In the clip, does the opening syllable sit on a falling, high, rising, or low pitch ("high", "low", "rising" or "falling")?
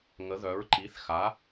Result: rising